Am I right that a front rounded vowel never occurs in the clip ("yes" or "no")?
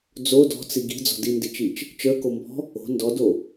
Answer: yes